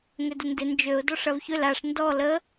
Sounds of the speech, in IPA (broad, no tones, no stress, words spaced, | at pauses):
ŋʏdəndɪ nd͡ʒøʊ̯ dɔʂɐvçʏl aʂ ndɔ lə